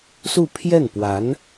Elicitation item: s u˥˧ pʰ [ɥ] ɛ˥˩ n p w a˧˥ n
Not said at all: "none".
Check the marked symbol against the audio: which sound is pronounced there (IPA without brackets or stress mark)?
j